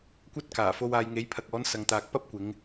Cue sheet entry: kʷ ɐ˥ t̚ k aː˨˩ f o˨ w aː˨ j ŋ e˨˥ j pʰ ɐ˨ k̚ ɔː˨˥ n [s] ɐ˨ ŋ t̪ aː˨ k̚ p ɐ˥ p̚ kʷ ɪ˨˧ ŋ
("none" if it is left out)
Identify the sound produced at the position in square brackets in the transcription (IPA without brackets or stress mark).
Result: s